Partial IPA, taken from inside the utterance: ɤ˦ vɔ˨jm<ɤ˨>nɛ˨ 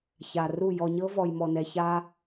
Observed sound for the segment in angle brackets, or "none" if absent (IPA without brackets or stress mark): ɔ˨